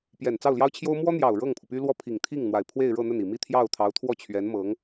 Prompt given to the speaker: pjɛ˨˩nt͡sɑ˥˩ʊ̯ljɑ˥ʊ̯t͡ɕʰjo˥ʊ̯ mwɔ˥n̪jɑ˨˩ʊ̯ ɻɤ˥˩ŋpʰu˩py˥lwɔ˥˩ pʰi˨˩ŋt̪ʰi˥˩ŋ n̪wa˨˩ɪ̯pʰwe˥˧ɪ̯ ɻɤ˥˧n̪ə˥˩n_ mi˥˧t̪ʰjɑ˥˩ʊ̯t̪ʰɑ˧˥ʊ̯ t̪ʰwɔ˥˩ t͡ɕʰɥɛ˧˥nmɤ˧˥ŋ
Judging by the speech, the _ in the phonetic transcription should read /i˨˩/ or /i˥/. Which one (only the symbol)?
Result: i˨˩